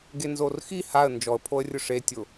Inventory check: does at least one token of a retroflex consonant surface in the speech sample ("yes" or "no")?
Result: yes